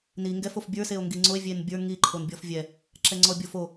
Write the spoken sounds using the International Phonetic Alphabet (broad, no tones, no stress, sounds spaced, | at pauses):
n i ŋ ɡ ɛ f o f bʲ ə˞ s e o̯ ŋ ɡ i ŋ͡ǀ o e̯ vʲ e n bʲ ə˞ ŋ i ǃʰ o n bʲ ɔ f vʲ ɛ | ǁ ɛ ŋ͡ǀ ɔ bʲ o f o